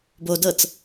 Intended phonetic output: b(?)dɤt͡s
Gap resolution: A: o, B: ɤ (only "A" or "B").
A